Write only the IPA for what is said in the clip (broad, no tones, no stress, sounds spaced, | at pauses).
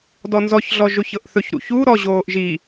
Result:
d ɔ n z ɔ ç ɮ ɔ ʒ o ç ɤ ʔ θ ɵ ç ɾ ṵ ç u ɾ ɔ ʑ oː ʔ ʒ i